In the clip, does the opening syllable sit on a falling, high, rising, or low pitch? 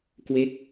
falling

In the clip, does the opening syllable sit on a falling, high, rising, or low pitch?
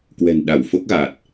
low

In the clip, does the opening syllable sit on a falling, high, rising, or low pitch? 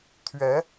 rising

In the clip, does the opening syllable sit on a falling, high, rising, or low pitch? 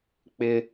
high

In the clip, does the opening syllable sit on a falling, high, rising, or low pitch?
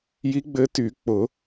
rising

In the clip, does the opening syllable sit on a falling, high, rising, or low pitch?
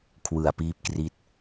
low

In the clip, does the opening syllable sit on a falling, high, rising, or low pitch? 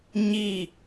low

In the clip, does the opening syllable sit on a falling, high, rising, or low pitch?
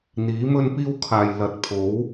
rising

